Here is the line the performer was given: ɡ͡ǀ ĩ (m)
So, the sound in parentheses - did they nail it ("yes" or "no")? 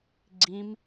yes